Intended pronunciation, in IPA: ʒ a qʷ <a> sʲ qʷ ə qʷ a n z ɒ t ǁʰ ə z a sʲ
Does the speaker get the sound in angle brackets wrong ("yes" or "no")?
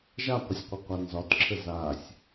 yes